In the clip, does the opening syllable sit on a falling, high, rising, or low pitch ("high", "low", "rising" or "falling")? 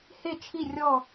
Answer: falling